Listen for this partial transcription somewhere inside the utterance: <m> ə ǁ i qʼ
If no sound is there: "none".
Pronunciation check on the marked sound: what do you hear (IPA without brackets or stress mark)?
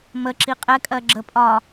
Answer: m